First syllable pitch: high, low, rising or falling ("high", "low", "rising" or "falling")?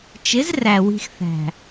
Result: rising